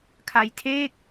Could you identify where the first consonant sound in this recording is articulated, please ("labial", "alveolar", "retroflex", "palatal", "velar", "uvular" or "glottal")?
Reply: velar